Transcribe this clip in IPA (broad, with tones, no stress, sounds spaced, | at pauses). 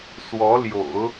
s w ɔ˧˥ l j o̰˨˩˦ ʊ̯